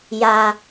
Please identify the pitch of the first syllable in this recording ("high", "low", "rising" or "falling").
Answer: low